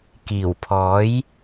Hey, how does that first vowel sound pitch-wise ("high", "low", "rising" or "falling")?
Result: low